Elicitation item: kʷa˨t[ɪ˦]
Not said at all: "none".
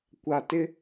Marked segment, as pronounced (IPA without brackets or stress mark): ɪ˦